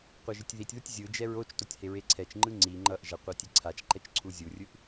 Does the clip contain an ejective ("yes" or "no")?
no